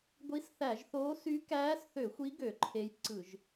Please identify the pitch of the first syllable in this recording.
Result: rising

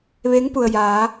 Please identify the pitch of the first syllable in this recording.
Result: rising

